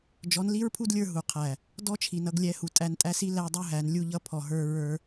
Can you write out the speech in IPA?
d͡ʒ ɔ˨˦ n l i˦ ɹ pʰ u˦ d lʲ ə˞˧ ɦ u˨ qʰ æ˨ | d ɔ˦ t͡ʃʰ i˨ n ʌ˧ ɡ lʲ ɛ˨˦ h u˨ tʼ æ˧ n tʼ æ˦ s i˦ l æ˦ dˤ u˦ ɦ æ˨˦ n lʲ u˧ ʎ ʌ˧ pʰ ɔ˨ ɦ ə˞˧ ɹ ə˞˧

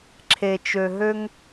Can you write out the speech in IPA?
ǁʰ e˨ t͡ʃ ø˨ ɦ ø˦ ŋ

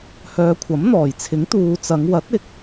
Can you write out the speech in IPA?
h œː˨ kʷʰ ɐ˨˥ m n̪ ɔː˨˩ j t͡sʰ ɪ˨˥ ŋ t̪ uː˨ t͡s ɐ˨˧ ŋ w ɐ˨˥ t̚ ɪ˨˥ k̚

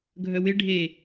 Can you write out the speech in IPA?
ɡʱ œ w ɪ ɖʱ e

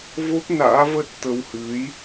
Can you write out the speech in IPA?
v o˦˥ p̚ n a̰ː˧˥ v ə˦˥ t̚ t̪ ə˧ w h ɨ˨˦ j

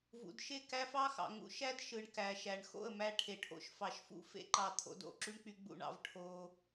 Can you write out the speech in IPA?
v ṵ˨ d ʃ e˦˨ k æ˦ f ɑ˦ x ɑ̰˨ ŋ ṵ˧ ʃ æ˦ d ʃ ɯ˨ ɳ k æ˨ ʃ æ˨ ɳ x o̰˦˨ ə̯ m æ˧ ʈʰ e˨ ʈʰ o̰˧ ʃ f ɑ˨ ʃ f ṵ˦ f ḛ˦ ǃ ɑ˧ t̪ʰ o̰˧ d o̰˦˨ ǁ y˦ ɳ k͡p y˧ ɡ͡b ṵ˦˨ ɳ ɑ̰˧ v ʈʰ o˧

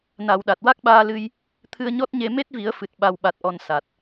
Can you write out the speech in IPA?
n a˨˩˨ w ɗ a˨˩ t̚ w a˦˥ k̚ ɓ aː˧ l ɨ˧ j | t̪ʰ ɨ˧ ə̯ ɲ ɔ˦˥ t̚ ɲ e˧ m e˦˥ t̚ v i˨˩˦ ə̯ f ɨ˨˩ t̚ ɓ a˨˩ w ɓ a˨˩ t̚ ʔ ɔ˨˩ n s a˨˩ t̚

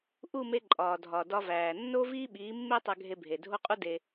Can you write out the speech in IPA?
ʔ u˦˨ m e˧ ǃʼ ɒː˨ dʱ ɒ˨ d ɒ˧ v æː˨ nː o˦ v iː˦ ɓ iː˨˦ mː e˦ tˤ æ˧ ɡʱ e˧ bʱ e˨ dʱ o˦ qʼ u˦ d e˧

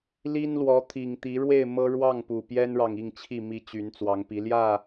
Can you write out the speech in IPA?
l i˦ n l w ɔ˨˦ t̪ʰ i˨˩ ŋ t̪ i˨˦ ɻ w e˥˨ ɪ̯ m ɤ˦ ɻ w ɑ˥˨ ŋ p u˨˩ p j ɛ˦ n ɻ ɑ˨ ŋ i˥˨ ŋ t͡ɕʰ i˥˨ m i˦ t͡ɕ y˨˦ n t͡s w ɑ˨˦ ŋ p i˨˦ l j ä˥˨

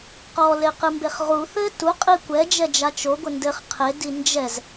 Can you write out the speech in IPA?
q ɔ l e q ɨ m b e χ ʁ u θ ɘ t u qʼ i kʷ ɛ d͡ʒ ɛ d͡ʒ a t͡ʃ o ɡʷ ɘ n d ɘ χ qʰ e d i n d͡ʒ ɛ z

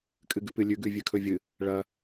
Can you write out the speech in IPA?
kʼ ɨ ɡ ʉ p ɨ lʲ ʉ ɡ ʉ vʲ ʉ kʰ ɵ vʲ ɨ | ɭ ɐ

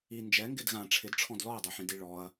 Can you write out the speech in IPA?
i n d͡ʒ ɛ ŋ ɡ ɪ d ɣ ã ʈ͡ʂʰ ɪ d ʈ͡ʂʰ ɔ̃ d l ɔ ɐ̯ dˤ ɛ ħ ĩ d i ɭ ɔ ɐ̯

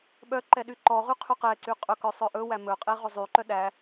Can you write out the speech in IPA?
ɓ œ ǃ ɛ ɗ y ǃ ɔ ʁ y qʰ ʉ q ɛ ǀ y qʼ ɵ k œ sˤ œ ʔ ɵ w æ m ɵ qʼ e ʁ ɵ zˤ y ǃ œ ɗ æ

